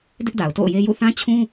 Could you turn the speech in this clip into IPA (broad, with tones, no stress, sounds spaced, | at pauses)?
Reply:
d ɪ˦ ʔ d a˨ ʊ̯ t o̰˦˨ ʊ̯ j e˦ j ṵ˦˨ θ ã˦ t͡ɕʰ ũ˦